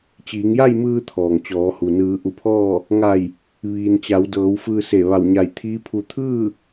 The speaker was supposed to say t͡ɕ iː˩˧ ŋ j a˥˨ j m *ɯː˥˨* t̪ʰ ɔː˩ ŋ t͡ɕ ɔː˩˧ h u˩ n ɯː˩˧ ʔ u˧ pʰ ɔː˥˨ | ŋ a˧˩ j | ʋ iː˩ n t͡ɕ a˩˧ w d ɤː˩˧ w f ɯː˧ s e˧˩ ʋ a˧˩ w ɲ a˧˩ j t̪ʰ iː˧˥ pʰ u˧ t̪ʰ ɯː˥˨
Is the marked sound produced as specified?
no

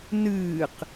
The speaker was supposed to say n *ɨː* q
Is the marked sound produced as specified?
yes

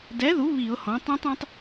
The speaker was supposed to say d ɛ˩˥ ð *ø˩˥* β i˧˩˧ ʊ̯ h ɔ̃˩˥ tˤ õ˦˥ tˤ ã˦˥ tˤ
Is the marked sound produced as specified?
no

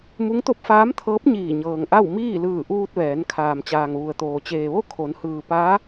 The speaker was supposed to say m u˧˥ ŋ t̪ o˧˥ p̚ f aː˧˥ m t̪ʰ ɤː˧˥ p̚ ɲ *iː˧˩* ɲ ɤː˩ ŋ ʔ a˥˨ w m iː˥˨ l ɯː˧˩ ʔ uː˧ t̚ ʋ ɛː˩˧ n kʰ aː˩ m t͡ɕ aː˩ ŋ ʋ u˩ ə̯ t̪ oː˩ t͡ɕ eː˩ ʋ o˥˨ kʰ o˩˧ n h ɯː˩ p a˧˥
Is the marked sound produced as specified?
yes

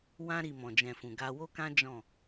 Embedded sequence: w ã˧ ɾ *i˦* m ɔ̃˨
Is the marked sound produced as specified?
no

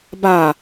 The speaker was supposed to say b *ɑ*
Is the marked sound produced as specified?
no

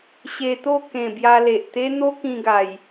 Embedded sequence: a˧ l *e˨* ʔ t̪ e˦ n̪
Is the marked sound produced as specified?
yes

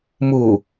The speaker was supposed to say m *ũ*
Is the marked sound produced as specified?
no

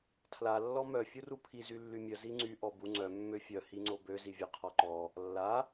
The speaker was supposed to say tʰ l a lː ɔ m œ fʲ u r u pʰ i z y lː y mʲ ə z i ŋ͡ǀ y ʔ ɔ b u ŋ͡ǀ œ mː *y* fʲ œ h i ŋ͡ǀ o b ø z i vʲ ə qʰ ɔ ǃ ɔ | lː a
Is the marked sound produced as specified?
no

